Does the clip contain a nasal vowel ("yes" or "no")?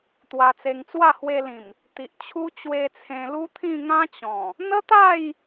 yes